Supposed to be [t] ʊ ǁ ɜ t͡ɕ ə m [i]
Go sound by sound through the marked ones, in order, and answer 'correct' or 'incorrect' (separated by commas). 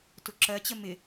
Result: correct, incorrect